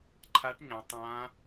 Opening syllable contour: rising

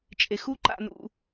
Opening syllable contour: low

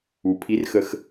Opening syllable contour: low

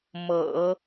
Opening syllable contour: low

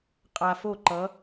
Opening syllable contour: low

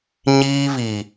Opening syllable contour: high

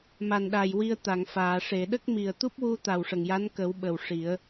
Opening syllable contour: low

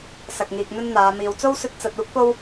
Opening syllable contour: low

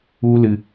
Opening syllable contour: high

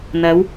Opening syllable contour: rising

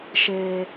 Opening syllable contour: high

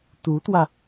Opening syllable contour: rising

